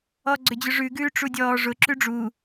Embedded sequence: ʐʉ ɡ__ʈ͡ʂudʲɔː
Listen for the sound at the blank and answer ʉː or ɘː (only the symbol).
ʉː